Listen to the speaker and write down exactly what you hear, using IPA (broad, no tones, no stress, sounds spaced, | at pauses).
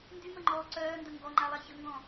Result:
n d y m ə ŋ͡ǃ ɔː ǀ œː n d ə ŋ ɡ ɔ ŋ͡ǃ a lˠ a ç ə ŋ ɡ ɔ̃